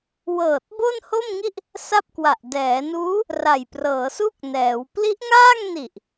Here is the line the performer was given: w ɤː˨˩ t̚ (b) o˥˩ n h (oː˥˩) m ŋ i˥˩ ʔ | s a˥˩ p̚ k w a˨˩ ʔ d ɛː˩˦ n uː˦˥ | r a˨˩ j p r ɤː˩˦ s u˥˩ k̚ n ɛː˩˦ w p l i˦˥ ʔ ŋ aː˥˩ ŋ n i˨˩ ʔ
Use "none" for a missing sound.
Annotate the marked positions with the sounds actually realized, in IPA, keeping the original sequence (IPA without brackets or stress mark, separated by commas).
b, o˥˩